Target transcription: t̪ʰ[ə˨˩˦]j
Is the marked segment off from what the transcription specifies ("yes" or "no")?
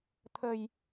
yes